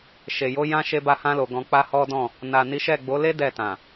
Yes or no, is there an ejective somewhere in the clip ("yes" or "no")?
no